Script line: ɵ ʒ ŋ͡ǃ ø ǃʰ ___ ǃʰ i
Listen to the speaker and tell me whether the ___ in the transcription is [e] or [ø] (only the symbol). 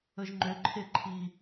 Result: e